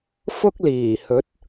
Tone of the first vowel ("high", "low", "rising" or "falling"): high